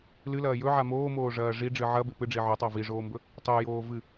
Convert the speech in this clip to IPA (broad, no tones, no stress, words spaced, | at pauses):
lɨlɐː jɵʕa moːmoːʐɐː ʐiɖ͡ʐɨ ʕɐbe pɨɖ͡ʐi ʕɵtˤa viʐoːmbɵ | tˤejoː vɨ